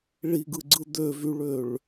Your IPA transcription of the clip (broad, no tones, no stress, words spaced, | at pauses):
ɭiɡɯɡ͡ǀɯ d̪øvyɭøɭ